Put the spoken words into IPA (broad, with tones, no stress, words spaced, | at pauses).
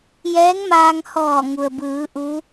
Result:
jɛː˧˥ŋmaː˧ŋ hɔː˧˩ŋu˩ə̯bɯː˩˧ ʔu˧˥